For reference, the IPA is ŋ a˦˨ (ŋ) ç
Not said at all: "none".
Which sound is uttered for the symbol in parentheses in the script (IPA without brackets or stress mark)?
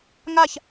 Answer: none